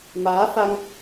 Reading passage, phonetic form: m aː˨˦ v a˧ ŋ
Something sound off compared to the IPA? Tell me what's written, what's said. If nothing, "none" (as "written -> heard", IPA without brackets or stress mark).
v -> f